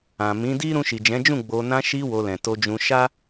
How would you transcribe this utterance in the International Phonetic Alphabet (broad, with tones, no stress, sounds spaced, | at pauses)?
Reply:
ã˨ m ĩ˨˦ d i˦ ɾ ũ˧ ʃ i˨ d͡ʒ ɛ̃˨˦ d͡ʒ ũ˦˨ ɡ͡b o˧ n ã˧ ʃ i˧ w o˧ l ɛ̃˨ t o˧ d͡ʒ ũ˧ ʃ a˦